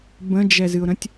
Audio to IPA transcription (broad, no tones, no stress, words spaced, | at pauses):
bə̃d͡ʒɛzɨʊ̯ɾə̃tʲ